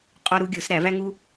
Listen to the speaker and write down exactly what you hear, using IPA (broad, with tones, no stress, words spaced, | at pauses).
qʼɒ˦ɾu˦ɡʲo˨˩˦sɾæ˨˩˦ væ˦ŋu˦